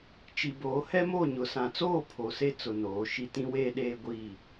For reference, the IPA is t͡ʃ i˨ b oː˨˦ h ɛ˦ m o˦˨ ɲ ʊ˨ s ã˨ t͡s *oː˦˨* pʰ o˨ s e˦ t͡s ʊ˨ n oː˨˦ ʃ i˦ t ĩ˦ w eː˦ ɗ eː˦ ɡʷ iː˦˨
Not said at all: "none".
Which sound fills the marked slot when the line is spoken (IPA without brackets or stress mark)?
oː˦˨